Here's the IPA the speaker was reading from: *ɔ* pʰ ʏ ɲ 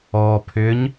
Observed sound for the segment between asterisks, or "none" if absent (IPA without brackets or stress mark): ɔ